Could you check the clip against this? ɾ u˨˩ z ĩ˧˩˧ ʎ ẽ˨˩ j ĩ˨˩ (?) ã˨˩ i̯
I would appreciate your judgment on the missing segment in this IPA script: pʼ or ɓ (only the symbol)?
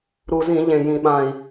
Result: ɓ